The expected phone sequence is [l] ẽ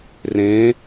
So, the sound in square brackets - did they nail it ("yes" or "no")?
no